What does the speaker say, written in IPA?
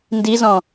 ndizɔ̃

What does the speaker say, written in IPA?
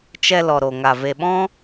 t͡ʃɛ˧ lɔ˨ɾo˨ŋa˨ ve˨ɓɔ̃˦

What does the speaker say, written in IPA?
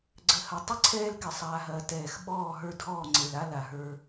ɡ͡ǀə˨hɐ˨ tˤə˦ ǀʰɛː˦lkɪ˨sˤaː˨ɦɐː˨ tɛː˨x ɓɔː˦˨ɦə˞˦dʱɔː˦˨ ŋ͡ǀe˨la˦ la˨ɦə˞˦

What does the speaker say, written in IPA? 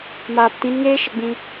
maː˨ptĩ˨˦nŋeː˦ʃə˦˨ ɡ͡bĩ˧

